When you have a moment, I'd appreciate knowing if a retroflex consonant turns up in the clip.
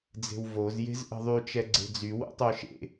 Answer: no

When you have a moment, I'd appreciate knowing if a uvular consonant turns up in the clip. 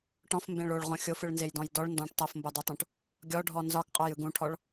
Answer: yes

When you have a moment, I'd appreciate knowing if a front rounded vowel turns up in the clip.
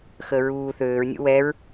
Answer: yes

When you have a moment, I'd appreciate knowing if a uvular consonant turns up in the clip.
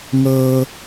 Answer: no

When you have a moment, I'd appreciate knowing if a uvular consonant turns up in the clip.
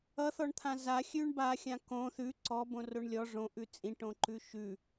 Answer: no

